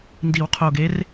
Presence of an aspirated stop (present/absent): present